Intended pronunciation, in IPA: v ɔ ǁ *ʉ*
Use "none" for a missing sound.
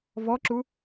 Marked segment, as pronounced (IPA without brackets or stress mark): u